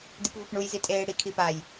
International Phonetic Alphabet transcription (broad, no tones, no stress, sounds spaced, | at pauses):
d i p v ɤ p ɳ u j z i tʼ eː ɽ i kʰ i p a j